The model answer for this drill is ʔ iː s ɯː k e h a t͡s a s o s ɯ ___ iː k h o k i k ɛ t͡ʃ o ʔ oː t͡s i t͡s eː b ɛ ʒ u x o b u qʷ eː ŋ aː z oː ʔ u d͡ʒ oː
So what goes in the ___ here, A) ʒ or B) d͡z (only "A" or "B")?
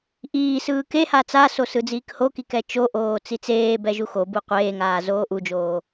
B